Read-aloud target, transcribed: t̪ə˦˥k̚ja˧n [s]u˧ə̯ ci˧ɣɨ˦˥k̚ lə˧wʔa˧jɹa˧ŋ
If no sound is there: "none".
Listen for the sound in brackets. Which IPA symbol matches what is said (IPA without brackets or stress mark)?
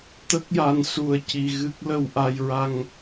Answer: s